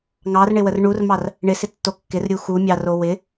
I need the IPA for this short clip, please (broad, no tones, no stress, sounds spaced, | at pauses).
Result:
ŋ ɑ r ɳ ɪ w ə r ɳ u r m ɑ r | ɳ ɪ s ɪ tː o kː ɪ r ɾʲ u x u mʲ ɑ r o w ɪ